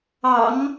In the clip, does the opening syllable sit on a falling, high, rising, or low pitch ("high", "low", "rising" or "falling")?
low